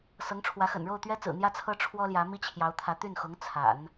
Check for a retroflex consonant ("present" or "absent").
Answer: present